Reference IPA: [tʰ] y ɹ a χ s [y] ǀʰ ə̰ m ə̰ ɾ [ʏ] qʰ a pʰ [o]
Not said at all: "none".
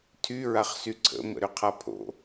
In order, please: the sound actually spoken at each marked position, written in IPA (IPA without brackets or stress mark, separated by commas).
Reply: tʰ, y, ʏ, o̰